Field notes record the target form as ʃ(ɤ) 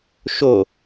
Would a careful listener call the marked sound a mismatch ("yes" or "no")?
yes